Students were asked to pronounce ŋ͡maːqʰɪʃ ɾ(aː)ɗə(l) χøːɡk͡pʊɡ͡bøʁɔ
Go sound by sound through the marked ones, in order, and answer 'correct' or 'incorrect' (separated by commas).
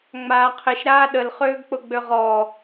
correct, correct